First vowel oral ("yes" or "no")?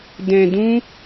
no